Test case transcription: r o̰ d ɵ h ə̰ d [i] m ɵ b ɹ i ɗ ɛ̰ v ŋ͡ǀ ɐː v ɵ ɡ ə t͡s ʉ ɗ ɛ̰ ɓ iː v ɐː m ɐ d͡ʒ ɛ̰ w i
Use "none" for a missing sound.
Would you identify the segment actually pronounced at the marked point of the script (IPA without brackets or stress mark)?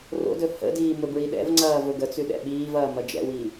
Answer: iː